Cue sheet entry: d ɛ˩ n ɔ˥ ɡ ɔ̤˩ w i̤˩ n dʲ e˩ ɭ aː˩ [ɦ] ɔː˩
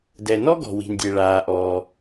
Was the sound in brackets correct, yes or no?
no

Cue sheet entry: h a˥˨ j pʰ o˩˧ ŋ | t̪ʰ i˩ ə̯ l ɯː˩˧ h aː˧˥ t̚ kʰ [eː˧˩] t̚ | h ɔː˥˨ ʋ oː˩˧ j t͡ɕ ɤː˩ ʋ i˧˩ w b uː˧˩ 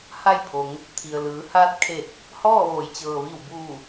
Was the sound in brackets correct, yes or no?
no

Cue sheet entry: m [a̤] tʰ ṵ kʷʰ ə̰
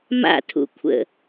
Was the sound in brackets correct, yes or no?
no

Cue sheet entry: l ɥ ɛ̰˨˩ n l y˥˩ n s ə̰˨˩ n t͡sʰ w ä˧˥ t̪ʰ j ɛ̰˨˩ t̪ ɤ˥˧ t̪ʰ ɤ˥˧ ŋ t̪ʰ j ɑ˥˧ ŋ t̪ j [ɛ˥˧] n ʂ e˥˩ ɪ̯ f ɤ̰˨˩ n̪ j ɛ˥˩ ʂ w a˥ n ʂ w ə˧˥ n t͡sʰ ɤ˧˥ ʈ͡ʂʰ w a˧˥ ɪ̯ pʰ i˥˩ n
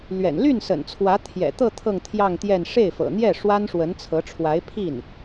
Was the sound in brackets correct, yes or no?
yes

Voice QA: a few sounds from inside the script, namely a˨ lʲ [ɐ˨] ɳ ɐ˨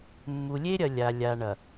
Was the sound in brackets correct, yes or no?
no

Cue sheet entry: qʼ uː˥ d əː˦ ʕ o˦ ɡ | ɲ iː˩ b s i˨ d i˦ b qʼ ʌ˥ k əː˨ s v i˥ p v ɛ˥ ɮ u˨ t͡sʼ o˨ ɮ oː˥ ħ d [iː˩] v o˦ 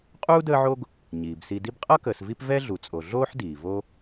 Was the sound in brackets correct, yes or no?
yes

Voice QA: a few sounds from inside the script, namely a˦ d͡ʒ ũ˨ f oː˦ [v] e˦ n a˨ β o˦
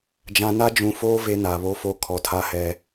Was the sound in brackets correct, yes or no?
yes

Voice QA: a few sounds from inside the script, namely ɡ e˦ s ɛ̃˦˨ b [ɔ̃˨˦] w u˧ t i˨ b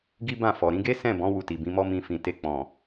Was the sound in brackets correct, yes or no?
yes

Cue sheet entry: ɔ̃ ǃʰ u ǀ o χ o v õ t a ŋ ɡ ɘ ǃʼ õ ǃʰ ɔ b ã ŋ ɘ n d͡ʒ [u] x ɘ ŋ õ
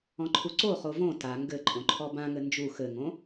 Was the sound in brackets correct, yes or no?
yes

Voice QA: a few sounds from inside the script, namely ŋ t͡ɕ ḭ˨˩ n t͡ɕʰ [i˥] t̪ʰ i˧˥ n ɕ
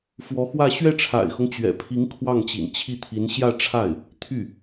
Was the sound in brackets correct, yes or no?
no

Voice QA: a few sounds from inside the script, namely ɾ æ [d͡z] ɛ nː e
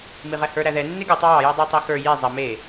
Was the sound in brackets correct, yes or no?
no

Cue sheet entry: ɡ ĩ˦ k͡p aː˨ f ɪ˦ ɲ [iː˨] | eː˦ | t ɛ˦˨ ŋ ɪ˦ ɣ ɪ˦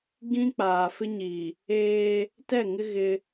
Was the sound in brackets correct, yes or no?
yes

